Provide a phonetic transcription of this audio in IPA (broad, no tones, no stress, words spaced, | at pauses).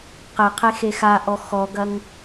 qɘ qʰexexaʔɔ xɔɡɐŋ